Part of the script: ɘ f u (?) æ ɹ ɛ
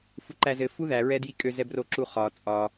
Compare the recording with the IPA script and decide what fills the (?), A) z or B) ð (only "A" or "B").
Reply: B